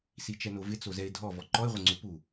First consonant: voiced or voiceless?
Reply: voiceless